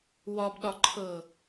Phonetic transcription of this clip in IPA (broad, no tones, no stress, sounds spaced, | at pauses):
w ɒ b ɗ ɒ ǃʰ ɤ